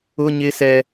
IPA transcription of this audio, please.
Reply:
ʊ˦ ɲ ɪ˦ s ɛ˦

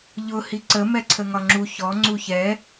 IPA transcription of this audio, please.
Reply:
ʎ ʊ h i ǀ ə m ɛ ǀʰ ə ŋ ɒ ŋ͡ǁ u ç ɔ ŋ͡ǀ u ç ɛ

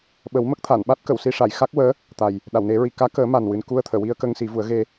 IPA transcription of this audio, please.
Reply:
ɓ ə˨˩˦ w m ə˦˥ k̚ t̪ʰ a˨˩˨ n ɓ a˦˥ t̚ k ə˨˩˨ w s i˧ ʂ a˨˩˨ j x a˦˥ k̚ w əː˧˥ | t̪ a˨˩ j | ɗ a˨˩˨ w n e˨˩˦ ɹ i˨˩ k aː˧˥ k əː˨˩˦ m a˨˩ n w ɨ˨˩ n k u˧ ə̯ t̪ʰ əː˨˩˨ w i˧ ə̯ k ə˧ ŋ s i˨˩˦ v u˨˩˦ ə̯ ɣ e˧

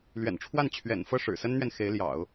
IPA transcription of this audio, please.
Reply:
l ɥ ɛ̰˨˩ n ʈ͡ʂʰ w a˥˩ n t͡ɕʰ ɥ ɛ̰˨˩ n f ɤ˥˩ ʂ ɻ̩˨˩ s ə˥ n n̪ ɥ ɛ˨ n x e˧˥ ɪ̯ l j ɑ̰˨˩˦ ʊ̯

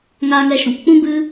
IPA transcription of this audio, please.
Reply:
ŋ aː˧ ŋ ɛ˧ ʃ ũ˨ p k͡p ũ˦ b ɨ˦

